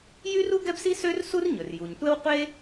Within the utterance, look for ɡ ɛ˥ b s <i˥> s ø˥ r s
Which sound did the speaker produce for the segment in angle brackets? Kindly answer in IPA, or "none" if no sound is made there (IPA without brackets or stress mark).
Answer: i˥